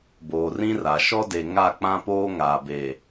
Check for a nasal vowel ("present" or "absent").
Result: present